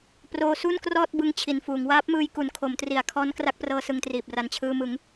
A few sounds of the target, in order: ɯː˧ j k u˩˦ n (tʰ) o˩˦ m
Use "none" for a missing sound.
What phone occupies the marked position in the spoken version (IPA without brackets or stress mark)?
kʰ